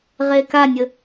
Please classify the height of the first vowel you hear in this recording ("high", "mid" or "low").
mid